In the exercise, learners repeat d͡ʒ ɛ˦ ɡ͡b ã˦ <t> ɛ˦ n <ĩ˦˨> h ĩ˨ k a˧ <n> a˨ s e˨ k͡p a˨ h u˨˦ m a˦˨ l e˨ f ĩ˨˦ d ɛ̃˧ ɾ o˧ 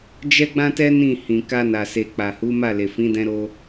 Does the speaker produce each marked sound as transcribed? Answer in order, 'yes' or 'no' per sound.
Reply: yes, yes, yes

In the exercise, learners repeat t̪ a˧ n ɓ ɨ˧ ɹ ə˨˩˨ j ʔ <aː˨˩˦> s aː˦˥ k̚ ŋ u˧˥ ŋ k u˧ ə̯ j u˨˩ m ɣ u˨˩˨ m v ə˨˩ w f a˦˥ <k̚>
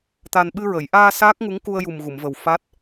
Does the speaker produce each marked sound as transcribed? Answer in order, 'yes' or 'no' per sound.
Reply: no, no

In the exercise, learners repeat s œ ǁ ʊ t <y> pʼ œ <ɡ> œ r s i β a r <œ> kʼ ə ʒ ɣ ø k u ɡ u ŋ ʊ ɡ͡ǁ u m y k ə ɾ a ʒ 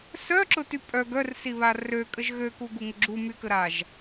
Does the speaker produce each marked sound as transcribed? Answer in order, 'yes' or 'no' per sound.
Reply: yes, yes, no

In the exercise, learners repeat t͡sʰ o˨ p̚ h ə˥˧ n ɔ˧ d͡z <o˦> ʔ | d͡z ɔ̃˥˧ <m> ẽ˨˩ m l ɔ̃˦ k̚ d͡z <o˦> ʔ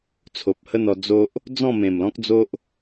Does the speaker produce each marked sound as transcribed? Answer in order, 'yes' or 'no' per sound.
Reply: yes, yes, yes

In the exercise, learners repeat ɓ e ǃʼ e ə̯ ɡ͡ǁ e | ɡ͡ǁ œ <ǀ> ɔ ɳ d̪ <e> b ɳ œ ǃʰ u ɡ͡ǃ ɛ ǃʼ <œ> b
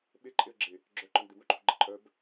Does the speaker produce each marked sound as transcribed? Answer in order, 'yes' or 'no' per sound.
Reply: no, yes, yes

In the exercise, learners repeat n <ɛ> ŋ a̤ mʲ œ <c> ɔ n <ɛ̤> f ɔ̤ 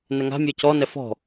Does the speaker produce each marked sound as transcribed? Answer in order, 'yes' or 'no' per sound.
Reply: yes, yes, no

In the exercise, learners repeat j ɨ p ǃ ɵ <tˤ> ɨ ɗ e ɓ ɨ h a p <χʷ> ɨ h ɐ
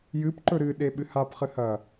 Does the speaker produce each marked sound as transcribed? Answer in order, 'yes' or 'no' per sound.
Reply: no, no

